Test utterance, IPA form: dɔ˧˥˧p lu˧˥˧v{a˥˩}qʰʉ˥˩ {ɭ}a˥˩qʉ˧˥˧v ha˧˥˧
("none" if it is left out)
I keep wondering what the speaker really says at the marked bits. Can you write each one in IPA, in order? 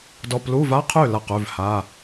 a˧˥˧, l

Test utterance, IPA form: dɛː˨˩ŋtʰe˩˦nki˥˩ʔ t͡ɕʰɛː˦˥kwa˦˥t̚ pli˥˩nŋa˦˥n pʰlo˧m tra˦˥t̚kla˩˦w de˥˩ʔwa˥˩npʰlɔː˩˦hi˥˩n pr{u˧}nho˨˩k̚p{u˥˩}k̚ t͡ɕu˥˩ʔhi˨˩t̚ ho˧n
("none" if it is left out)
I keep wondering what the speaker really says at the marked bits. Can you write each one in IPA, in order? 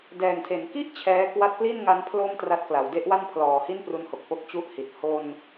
u˦˥, o˥˩

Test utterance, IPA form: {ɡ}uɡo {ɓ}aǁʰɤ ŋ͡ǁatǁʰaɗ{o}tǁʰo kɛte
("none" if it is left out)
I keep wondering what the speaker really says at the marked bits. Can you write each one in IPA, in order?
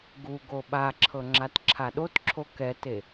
ɡ, ɓ, o

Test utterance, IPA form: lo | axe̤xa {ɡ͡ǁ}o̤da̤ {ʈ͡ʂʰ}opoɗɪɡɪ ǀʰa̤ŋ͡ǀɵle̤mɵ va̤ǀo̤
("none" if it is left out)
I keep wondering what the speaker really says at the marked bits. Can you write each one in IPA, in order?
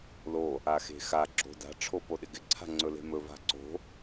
ɡ͡ǁ, ʈ͡ʂʰ

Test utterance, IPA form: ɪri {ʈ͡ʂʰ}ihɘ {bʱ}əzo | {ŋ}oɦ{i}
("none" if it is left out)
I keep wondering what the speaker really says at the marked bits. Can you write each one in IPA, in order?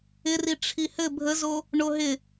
ʈ͡ʂʰ, bʱ, ɳ, ɪ

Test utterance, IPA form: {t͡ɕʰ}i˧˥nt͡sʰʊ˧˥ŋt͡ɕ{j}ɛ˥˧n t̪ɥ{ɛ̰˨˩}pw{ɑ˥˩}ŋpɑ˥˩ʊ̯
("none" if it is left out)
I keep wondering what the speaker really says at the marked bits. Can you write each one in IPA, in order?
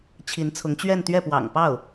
t͡ɕʰ, ɥ, ɛ˥˩, ɑ̰˨˩

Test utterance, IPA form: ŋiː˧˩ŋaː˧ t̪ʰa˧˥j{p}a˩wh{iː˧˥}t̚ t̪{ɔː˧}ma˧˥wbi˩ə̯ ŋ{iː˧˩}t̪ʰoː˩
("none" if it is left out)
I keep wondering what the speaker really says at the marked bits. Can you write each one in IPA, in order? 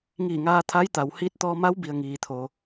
t̪, iː˧˥, ɔː˧, iː˩

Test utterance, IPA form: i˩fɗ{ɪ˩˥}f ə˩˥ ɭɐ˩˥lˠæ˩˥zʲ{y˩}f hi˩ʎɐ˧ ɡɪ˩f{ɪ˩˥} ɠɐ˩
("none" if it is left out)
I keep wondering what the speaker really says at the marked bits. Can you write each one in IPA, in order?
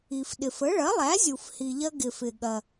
ɪ˩, u˩, ɪ˩

